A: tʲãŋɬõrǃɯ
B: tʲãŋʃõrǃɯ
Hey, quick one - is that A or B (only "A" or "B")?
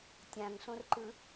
A